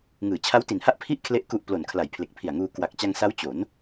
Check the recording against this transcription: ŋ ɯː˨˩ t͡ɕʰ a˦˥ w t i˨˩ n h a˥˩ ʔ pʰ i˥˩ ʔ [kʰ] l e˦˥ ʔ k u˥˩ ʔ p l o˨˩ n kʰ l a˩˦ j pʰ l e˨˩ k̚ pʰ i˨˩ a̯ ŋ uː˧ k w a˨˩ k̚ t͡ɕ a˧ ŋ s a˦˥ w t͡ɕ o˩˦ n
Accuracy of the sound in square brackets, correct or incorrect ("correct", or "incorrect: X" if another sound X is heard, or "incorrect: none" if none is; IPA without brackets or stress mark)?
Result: correct